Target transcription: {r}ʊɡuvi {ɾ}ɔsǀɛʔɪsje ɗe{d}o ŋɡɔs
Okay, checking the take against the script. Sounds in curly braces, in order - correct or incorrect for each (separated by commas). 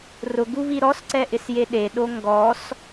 correct, correct, incorrect